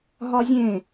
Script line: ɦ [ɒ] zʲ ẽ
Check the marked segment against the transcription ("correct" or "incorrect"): correct